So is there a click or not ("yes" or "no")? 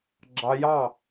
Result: yes